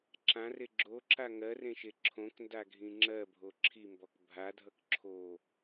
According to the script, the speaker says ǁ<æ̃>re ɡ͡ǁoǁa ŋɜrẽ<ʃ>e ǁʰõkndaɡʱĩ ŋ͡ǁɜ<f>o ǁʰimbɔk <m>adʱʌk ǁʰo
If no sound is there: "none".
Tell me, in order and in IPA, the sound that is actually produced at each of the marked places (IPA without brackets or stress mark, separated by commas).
ã, ʃ, bʱ, bʱ